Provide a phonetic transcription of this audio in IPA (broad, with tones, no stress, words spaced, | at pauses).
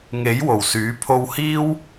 ŋe˨˥j wo˨˩wsyː˨˥ pʰo˧whiː˥w